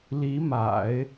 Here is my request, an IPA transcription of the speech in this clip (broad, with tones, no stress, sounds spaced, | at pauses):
l i˧˥ m a̰˨˩˦ ɪ̯